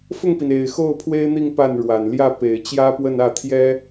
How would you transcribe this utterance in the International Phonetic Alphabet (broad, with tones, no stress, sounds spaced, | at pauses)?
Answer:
f ʊ˥˩ ŋ p i˩ n e˨˩ ɪ̯ x o˥˩ ʊ̯ pʰ w e˥ ɪ̯ n̪ i˥˧ ŋ p a˥˩ n ɻ w a˨˩ n l j ä˥˩ p e˨˩ ɪ̯ t͡ɕ j ä˥ p w ə˥˧ n ä˥˩ t̪ʰ j ɛ˥